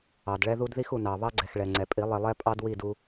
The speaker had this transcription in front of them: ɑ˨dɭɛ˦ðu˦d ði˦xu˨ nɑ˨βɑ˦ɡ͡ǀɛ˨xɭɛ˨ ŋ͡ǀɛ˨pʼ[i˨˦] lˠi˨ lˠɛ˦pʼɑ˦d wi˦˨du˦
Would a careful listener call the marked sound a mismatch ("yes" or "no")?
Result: no